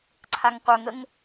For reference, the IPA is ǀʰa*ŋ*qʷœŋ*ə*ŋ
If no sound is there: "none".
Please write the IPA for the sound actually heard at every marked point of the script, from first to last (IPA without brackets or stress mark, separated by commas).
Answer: ŋ, ə